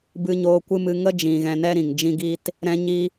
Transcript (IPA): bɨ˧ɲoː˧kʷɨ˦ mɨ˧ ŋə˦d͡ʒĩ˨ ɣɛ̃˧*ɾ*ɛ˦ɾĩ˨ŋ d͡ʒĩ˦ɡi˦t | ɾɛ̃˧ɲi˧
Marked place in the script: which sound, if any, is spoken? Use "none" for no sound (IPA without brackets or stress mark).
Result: n